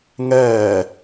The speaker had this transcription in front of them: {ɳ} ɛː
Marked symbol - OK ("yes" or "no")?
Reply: no